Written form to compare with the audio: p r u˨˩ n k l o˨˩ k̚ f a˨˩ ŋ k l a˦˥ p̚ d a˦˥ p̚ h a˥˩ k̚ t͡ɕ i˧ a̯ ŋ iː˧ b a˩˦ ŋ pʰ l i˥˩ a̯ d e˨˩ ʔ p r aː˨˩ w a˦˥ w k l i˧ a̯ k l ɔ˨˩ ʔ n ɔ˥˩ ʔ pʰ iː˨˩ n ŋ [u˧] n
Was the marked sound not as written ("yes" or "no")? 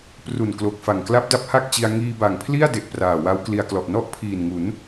yes